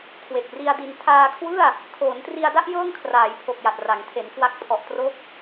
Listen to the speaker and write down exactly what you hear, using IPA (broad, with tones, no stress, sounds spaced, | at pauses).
kʰ w e˨˩ k̚ r i˧ a̯ d i˧ n tʰ aː˧ kʰ w ɯ˥˩ a̯ | kʰ oː˩˦ n t r i˧ a̯ d a˥˩ ʔ j ɤː˥˩ ŋ kʰ r aː˩˦ j pʰ o˨˩ k̚ j a˨˩ t̚ r a˩˦ ŋ tʰ e˩˦ n k w a˦˥ k̚ pʰ ɔ˨˩ ʔ t r o˦˥ k̚